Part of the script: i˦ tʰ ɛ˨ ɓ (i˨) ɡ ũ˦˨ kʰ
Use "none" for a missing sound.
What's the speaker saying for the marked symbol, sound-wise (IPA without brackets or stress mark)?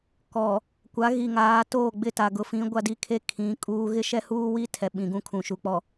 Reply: ĩ˨